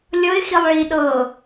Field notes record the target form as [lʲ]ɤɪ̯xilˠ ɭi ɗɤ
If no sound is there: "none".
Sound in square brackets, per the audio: lʲ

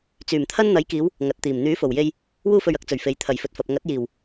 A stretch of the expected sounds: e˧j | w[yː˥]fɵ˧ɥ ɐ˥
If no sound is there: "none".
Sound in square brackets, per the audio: uː˥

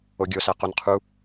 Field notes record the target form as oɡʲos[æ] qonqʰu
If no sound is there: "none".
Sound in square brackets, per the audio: æ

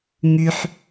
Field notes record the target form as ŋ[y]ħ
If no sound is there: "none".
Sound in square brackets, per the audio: y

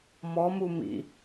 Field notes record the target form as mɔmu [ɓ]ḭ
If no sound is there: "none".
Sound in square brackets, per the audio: m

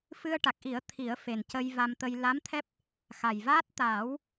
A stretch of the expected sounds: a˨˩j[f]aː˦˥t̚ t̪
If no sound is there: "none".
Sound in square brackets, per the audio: v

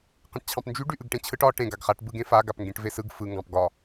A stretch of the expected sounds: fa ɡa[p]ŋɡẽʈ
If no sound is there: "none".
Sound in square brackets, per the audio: p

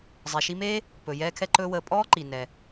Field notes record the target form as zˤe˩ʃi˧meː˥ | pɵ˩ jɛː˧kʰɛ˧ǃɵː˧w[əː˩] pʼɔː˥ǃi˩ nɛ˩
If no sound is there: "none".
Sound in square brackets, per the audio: əː˩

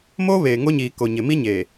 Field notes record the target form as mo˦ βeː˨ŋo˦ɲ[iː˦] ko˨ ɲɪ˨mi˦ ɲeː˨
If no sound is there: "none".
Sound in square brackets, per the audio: iː˨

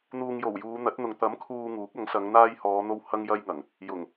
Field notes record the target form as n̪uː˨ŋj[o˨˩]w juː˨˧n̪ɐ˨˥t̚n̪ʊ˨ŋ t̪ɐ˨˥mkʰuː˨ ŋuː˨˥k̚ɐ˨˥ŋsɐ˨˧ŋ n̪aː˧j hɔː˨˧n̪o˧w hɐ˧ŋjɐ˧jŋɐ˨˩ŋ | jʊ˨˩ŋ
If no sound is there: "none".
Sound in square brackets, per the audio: o˨˩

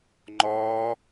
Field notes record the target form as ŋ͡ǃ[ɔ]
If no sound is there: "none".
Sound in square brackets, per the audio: ɔː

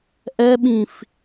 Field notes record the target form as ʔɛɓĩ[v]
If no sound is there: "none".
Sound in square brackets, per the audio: f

